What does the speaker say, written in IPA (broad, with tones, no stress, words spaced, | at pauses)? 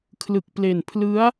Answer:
kʰlɯ˨˩k̚ple˨˩npʰlɯ˦˥a̯